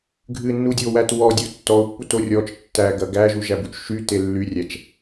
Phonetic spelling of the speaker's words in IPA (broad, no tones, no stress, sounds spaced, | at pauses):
ɡʱ ɨ nː u dʲ o w æ t w ɔ dʲ u tː ɔ ʊ̯ pː u t o rʲ ɔ t͡ʃ tː æ ɡ ɐ ɡ æ ʒ u ʒ æ b u t͡ʃ ʃ y t e lː y rʲ æ t͡ʃ